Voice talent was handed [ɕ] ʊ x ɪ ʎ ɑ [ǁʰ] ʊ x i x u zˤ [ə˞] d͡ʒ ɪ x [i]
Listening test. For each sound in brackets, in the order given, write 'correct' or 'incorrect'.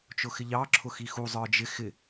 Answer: incorrect: t͡ʃ, correct, correct, incorrect: ɪ

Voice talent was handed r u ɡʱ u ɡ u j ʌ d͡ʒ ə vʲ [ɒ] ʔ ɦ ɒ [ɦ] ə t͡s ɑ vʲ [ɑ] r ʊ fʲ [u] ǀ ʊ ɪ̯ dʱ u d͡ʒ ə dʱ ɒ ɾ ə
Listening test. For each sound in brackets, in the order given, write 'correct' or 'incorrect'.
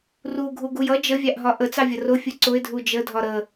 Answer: incorrect: ɑ, incorrect: ʔ, incorrect: ʌ, correct

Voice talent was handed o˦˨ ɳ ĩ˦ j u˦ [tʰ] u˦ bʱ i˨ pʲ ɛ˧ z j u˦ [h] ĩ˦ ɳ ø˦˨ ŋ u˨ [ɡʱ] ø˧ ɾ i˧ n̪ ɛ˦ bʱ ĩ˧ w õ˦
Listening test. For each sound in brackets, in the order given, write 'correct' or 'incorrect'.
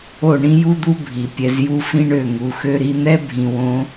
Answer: incorrect: d̪, incorrect: f, incorrect: x

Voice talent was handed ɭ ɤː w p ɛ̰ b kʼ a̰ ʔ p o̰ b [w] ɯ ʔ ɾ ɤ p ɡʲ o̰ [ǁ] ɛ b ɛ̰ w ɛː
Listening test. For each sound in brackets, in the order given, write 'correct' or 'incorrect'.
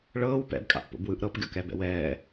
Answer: correct, incorrect: k

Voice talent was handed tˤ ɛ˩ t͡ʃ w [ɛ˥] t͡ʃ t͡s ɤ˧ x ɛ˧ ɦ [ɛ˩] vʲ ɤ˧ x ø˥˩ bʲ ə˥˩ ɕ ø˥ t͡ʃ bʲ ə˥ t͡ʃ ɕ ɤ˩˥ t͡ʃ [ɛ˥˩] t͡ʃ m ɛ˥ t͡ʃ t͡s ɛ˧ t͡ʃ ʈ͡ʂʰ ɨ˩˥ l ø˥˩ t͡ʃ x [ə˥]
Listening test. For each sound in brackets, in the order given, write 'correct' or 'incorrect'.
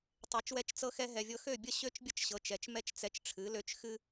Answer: incorrect: ɛ˧, correct, incorrect: ɛ˩, incorrect: ɨ˥

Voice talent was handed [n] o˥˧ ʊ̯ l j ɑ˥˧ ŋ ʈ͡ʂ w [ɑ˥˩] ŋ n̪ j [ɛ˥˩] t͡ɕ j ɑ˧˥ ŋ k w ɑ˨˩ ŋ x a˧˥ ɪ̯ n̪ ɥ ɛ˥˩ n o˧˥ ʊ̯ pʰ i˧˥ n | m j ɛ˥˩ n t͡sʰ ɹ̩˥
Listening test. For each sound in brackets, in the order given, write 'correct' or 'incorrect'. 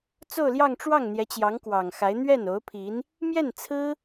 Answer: incorrect: t͡s, correct, incorrect: ɛ˧˥

